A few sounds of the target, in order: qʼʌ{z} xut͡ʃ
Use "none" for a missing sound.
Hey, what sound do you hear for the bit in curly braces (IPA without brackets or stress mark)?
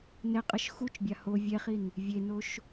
ʃ